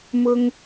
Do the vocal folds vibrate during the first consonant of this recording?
yes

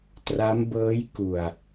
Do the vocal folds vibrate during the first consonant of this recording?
no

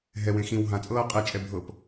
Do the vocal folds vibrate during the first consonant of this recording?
yes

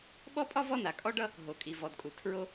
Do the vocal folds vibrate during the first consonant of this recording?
yes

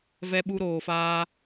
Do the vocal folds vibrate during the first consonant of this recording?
yes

